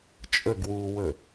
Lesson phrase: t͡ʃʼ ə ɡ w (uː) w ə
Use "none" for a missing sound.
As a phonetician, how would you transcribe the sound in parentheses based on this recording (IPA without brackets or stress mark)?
uː